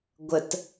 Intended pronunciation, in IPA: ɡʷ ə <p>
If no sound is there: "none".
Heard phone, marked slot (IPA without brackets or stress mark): t